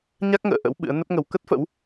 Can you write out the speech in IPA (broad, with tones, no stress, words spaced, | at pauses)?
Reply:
ɲa˦˥k̚ŋə̰ː˧˨ ʔə̰˧˥w ɓɨ̰˧˥ə̯nə˦˥p̚ŋə˨˦w kə˦˥t̚fə̰˧˥w